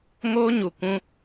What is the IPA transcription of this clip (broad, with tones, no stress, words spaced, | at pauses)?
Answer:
ŋoː˦ɲu˨ kũ˧